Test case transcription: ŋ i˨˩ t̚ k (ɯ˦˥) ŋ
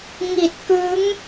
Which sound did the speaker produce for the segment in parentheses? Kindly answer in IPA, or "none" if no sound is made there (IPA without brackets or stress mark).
ɯ˦˥